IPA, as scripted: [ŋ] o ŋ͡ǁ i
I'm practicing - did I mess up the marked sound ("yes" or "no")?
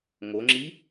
no